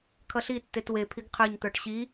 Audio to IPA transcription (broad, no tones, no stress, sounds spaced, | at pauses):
kʰ ʌ ɬ i tː e t w e pʰ i ɡ qʰ ə˞ ɲ t̪ ə˞ ʈ ɕ i